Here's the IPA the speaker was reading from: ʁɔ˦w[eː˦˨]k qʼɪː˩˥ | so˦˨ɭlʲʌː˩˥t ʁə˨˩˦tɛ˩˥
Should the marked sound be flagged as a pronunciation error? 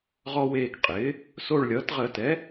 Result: no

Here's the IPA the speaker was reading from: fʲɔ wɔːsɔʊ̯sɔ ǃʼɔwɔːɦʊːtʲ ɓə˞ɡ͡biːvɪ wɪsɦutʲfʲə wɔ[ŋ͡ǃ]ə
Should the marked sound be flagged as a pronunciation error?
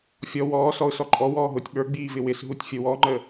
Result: no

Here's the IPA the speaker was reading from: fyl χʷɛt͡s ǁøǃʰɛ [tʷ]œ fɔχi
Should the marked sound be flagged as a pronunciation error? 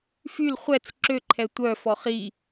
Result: no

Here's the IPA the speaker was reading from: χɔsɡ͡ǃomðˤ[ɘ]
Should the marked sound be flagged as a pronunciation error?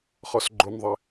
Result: no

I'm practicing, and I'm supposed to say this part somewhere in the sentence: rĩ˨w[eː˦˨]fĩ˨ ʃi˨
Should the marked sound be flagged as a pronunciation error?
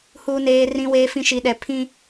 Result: yes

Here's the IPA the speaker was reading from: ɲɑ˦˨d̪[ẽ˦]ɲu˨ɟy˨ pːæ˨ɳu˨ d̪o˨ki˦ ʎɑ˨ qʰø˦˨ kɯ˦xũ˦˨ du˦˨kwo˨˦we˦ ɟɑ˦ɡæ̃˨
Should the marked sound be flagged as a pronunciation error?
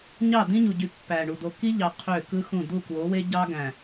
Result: yes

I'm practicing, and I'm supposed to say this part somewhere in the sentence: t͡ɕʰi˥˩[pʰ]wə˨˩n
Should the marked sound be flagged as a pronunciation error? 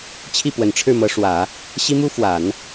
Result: yes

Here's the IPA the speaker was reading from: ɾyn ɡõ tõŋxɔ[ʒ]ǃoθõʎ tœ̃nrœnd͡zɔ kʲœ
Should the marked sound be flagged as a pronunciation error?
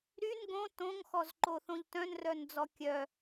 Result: yes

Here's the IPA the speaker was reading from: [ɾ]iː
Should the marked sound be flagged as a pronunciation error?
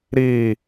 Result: no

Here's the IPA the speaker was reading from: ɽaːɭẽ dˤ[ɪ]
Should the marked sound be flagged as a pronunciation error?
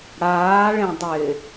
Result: no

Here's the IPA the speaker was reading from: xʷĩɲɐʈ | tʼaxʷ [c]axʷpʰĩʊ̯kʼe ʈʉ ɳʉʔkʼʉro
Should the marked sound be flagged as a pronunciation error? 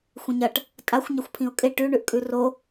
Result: yes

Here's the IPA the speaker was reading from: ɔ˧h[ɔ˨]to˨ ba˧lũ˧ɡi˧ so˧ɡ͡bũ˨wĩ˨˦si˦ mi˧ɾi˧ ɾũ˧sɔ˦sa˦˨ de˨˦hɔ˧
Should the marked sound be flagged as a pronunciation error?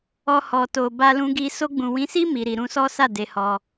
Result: no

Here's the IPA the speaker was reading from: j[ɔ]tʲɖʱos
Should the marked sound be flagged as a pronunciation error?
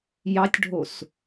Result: yes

